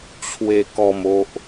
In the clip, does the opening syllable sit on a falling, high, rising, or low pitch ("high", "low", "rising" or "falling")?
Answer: low